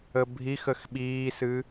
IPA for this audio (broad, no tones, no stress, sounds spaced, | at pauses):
ə bʱ i x ə x ɓ iː s ɨ